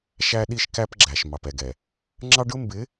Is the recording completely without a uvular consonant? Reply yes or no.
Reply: yes